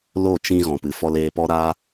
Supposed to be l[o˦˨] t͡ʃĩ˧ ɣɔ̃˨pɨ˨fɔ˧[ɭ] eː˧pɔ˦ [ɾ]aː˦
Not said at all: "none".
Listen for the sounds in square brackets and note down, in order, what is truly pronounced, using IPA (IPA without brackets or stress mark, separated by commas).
o˦˨, l, ɾ